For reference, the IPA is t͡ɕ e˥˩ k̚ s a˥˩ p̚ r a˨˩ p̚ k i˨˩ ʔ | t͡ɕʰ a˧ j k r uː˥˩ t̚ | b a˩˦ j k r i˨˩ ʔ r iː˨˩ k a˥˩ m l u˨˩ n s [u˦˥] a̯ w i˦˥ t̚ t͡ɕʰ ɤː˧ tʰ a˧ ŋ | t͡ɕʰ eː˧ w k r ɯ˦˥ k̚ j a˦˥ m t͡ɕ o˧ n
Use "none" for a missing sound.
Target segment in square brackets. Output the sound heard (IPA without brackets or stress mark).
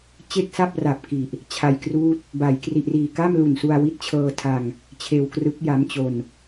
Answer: u˧